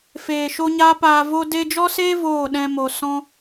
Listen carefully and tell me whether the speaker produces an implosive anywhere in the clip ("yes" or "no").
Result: yes